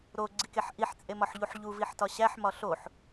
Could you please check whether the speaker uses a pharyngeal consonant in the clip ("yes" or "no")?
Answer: yes